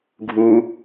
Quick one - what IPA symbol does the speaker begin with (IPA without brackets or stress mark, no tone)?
ɡʱ